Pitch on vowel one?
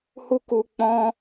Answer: high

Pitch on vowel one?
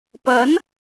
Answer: rising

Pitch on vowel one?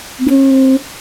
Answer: high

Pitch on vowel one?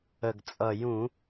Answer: low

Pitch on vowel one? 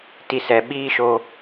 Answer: low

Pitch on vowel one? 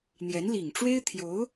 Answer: rising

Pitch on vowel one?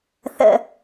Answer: low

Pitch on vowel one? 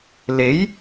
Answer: rising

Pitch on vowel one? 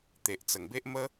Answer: low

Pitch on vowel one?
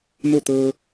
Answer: falling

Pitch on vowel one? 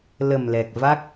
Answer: low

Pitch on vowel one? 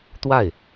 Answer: falling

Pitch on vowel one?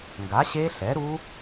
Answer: rising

